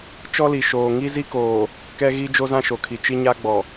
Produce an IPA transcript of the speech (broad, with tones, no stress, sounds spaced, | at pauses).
t͡ʃ ɔ˦ l i˨ ʃ oː˨ ŋ i˦ z i˦ k oː˨ | k ɛ˦ ɣ i˦ d͡ʒ o˦ z ã˦ ʃ o˨ kʰ i˨ t͡ʃ i˦ ɲ a˦ ɡ͡b ɔ˨